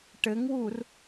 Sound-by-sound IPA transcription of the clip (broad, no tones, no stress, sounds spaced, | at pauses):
ʈ ɘ ŋ w u r